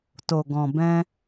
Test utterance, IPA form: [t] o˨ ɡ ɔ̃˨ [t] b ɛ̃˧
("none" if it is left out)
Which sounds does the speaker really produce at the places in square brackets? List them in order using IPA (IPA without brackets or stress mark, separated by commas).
t, none